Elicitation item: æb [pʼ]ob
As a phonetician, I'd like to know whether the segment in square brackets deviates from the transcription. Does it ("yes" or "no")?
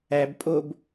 no